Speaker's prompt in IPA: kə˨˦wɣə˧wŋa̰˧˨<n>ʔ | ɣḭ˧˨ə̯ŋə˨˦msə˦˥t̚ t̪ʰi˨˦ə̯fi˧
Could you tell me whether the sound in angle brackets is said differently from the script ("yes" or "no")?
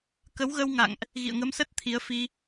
yes